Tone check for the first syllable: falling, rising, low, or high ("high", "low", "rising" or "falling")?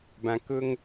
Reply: low